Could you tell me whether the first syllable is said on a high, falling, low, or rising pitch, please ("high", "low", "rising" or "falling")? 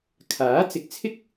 rising